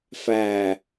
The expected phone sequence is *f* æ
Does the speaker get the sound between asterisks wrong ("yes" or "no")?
no